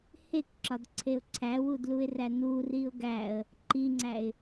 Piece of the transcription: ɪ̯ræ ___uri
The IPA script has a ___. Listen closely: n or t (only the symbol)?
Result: n